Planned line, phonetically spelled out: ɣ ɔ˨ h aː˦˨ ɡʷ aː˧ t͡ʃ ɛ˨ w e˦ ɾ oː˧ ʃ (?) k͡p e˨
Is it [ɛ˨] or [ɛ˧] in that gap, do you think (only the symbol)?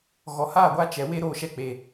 ɛ˧